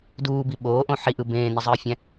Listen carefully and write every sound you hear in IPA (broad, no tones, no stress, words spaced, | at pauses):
duːbi ɓoːʔõ ħiʔɯ bẽːnizˤɯːfʲæ̃